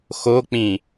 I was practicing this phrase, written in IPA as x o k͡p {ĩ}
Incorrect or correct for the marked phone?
correct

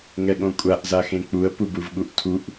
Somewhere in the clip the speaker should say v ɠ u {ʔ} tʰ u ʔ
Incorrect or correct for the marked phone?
correct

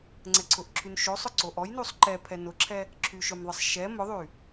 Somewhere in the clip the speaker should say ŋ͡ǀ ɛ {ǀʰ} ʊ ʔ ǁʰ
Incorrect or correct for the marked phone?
correct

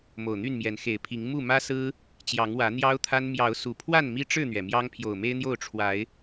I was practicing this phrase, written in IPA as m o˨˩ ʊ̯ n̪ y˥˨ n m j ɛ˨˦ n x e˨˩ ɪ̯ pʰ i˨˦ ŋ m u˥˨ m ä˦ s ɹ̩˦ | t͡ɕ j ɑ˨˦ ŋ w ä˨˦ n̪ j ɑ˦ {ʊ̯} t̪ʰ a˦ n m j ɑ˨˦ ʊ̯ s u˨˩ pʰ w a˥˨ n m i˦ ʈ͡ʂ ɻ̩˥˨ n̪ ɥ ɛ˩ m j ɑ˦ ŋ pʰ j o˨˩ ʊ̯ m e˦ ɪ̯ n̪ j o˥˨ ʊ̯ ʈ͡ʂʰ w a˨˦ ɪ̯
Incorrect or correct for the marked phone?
correct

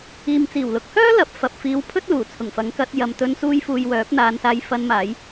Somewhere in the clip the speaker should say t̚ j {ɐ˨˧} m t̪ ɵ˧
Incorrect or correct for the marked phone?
incorrect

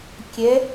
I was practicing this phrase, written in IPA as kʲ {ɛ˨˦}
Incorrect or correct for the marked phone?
correct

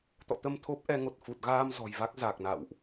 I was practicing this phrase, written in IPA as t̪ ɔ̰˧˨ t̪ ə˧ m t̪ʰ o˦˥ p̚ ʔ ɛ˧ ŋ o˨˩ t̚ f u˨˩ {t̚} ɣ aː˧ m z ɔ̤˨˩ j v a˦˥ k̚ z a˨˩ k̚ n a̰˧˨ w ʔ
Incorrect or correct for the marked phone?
correct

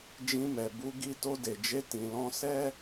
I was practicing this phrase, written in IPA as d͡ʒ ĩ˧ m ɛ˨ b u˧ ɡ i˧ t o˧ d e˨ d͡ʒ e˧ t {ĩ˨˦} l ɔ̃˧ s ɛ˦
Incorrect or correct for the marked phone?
incorrect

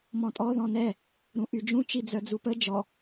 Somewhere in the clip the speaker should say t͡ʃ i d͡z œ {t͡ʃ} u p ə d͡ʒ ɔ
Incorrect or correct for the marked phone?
incorrect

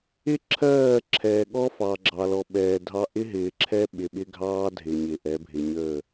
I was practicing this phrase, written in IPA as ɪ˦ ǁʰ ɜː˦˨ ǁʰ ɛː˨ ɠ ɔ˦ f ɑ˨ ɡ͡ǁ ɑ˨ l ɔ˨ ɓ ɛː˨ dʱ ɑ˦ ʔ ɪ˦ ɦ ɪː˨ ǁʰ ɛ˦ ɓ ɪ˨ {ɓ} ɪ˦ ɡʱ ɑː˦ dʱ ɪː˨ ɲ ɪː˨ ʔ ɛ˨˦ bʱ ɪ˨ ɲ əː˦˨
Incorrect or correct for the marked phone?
correct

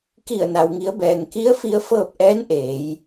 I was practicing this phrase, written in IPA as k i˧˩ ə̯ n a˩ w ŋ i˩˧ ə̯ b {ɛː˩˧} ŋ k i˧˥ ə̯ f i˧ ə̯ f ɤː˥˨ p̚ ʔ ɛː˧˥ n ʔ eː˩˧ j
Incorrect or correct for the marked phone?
incorrect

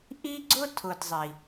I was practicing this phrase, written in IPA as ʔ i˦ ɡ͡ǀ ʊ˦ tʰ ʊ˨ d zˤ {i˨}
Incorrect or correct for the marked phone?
correct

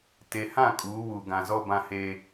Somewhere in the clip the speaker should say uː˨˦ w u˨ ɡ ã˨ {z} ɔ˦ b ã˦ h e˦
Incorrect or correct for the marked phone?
correct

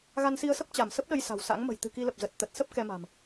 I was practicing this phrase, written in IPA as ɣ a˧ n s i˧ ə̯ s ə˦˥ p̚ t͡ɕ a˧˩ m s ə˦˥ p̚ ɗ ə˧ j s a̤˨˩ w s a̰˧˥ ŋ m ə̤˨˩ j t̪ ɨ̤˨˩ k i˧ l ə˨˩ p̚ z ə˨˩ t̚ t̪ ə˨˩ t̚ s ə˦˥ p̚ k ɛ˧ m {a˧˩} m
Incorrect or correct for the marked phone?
incorrect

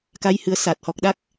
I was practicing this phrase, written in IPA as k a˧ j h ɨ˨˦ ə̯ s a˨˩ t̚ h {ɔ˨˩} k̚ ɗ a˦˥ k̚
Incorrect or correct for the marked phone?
correct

